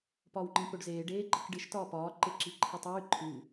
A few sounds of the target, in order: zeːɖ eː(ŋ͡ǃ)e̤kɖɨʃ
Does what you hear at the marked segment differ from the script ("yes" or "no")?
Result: yes